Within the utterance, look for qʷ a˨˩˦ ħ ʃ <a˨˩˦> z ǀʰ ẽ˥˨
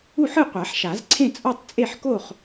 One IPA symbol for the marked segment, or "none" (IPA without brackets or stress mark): a˨˩˦